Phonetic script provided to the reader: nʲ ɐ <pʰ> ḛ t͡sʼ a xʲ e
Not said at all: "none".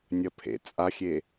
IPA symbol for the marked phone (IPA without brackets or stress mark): pʰ